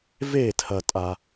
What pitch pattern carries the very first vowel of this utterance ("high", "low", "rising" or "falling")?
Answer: falling